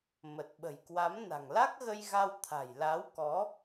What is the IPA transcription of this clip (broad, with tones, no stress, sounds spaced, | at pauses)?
m ə˨˩ t̚ ɓ ə̤˨˩ j k w a˨˦ m n a̤˨˩ ŋ l a˦˥ k̚ ɣ ə˧ j ɣ a˧ w t̪ʰ a̤˨˩ j l a˨˦ w k ɔ˨˦